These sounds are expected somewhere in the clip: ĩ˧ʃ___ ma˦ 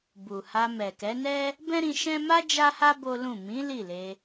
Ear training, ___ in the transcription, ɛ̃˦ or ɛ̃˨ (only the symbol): ɛ̃˦